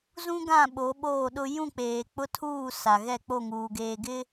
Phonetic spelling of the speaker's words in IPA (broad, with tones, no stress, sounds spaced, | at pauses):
z ũ˦ ɡ ã˦˨ ɓ o˨˦ ɓ oː˦˨ ɗ ʊ˦ j ũ˦˨ k͡p eː˨ k͡p ʊ˦ tʰ uː˦˨ s a˨ ɣ ɛ˦˨ k͡p o˦˨ ŋ uː˨ ɡ eː˨ ɡ ɪ˦